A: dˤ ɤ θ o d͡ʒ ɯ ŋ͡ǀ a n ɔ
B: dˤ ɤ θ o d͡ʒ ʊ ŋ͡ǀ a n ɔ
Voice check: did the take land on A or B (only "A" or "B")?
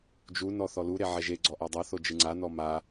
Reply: A